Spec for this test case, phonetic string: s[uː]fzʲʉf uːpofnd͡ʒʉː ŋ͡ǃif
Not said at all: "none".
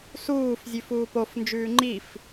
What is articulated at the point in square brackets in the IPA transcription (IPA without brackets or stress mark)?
uː